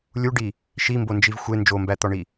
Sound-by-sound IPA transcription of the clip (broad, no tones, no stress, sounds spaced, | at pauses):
lʲ u ɖ i | ʃ i m b o n d͡ʒ i v xʷ e n d͡ʒ o m b æ t̪ ɒ ɳ i